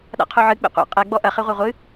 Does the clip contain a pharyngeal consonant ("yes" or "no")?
yes